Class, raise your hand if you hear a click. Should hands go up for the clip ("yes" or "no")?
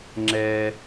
yes